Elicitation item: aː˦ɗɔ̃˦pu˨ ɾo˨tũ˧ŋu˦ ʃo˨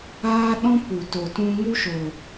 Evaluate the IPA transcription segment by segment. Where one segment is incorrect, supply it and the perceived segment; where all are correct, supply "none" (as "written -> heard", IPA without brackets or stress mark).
ɾ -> t